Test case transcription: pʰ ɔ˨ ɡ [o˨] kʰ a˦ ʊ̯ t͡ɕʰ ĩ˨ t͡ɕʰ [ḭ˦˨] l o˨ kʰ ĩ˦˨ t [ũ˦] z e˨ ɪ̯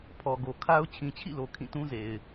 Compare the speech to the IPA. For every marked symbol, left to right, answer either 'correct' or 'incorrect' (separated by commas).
correct, correct, correct